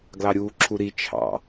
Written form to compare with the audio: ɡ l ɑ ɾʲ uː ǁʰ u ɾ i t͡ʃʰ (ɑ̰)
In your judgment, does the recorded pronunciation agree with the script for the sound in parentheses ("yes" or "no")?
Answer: yes